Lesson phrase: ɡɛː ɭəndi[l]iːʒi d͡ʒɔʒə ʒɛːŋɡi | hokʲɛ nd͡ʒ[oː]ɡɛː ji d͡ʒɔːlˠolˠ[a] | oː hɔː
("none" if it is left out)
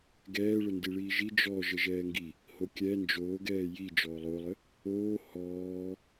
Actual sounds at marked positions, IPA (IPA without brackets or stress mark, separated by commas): ɭ, oː, ə